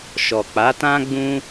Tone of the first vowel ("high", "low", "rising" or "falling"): low